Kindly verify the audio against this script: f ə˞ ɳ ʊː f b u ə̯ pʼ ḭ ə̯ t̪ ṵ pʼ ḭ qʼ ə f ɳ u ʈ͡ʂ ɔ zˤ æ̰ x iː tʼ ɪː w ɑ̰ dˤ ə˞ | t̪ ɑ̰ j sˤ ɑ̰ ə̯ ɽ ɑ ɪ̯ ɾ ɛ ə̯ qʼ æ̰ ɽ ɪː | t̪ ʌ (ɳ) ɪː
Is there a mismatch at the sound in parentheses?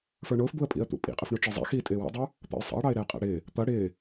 yes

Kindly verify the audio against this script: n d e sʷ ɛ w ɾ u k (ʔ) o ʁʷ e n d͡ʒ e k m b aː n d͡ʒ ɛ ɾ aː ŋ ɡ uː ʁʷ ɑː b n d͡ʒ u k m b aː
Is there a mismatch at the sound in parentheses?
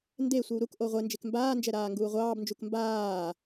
no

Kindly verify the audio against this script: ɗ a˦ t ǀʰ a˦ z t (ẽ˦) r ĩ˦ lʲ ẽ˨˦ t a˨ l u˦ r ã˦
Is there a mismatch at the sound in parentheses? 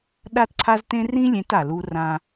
no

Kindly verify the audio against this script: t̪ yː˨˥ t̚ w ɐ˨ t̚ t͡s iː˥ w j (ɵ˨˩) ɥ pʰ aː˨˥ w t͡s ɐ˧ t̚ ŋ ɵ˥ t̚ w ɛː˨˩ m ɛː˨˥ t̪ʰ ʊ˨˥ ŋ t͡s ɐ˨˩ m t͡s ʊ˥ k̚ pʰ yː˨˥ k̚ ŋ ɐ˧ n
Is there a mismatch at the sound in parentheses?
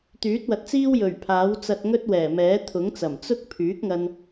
no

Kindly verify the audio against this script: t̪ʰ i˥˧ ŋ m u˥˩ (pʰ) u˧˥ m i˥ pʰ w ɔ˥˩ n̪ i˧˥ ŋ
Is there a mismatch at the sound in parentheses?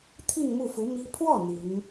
yes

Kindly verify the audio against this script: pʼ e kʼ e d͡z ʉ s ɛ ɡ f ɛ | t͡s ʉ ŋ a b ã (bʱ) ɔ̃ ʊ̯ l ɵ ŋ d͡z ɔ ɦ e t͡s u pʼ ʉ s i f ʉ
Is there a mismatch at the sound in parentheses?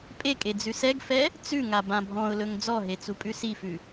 no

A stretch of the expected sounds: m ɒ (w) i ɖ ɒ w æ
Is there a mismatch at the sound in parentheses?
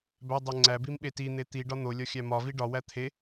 yes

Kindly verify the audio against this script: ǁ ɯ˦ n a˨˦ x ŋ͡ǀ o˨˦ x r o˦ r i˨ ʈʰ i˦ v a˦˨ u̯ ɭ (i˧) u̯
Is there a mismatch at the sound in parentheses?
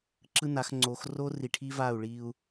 no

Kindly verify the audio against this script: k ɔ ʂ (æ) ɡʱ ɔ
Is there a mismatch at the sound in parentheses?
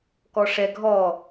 yes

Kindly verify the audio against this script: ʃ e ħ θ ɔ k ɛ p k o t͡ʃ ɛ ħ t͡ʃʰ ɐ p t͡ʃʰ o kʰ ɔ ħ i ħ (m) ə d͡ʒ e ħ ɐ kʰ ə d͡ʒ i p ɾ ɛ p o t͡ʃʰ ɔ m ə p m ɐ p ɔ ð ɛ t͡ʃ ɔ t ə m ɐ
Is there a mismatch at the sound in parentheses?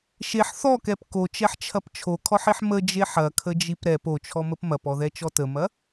no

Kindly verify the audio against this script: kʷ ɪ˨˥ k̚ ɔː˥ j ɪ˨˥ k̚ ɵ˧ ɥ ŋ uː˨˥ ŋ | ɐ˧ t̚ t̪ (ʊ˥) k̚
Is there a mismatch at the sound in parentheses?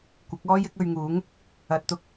no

